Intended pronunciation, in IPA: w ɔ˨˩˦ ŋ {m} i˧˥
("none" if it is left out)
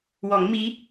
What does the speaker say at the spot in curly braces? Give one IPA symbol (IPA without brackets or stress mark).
m